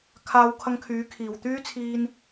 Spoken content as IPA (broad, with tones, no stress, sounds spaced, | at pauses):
kʰ aː˧ w kʰ ɐ˧ ŋ kʰ yː˨˧ kʰ iː˨ w t̪ yː˥ t͡sʰ iː˧ n